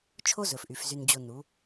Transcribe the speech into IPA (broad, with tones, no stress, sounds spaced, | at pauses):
t͡ʃʰ o˦ z ɵ˨ f ʔ y˨ f z y˧ n d͡ʑ o˧ n u˨˦